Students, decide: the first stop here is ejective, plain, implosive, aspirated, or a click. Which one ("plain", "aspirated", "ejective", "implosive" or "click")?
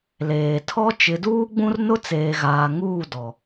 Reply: aspirated